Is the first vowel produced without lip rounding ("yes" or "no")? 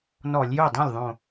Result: no